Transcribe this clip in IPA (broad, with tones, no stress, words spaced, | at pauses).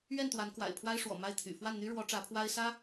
ɥɛ˥˩nt̪wa˧˥nkwa̰˨˩ɪ̯ pʰwa˥ɪ̯ʂwɔ̰˨˩ ma˥˩ɪ̯t̪ʰy̰˨˩ fwa˥˩nn̪y˥ɻwɔ˧˥ ʈ͡ʂä˧˥pʰwa˥ɪ̯sä˥